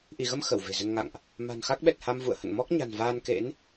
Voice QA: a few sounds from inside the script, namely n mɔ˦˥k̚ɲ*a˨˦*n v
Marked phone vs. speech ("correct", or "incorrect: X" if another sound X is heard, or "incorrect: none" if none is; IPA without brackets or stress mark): incorrect: a̤˨˩